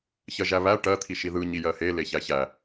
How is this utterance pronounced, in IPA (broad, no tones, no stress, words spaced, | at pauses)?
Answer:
çɜʒæβæ ʈɜ t̪ʰiʃiðɯ ɲijɜhe leçæçæ